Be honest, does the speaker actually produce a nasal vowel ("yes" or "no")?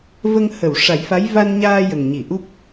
no